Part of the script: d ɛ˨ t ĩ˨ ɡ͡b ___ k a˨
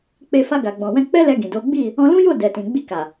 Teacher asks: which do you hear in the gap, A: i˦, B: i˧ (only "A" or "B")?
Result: B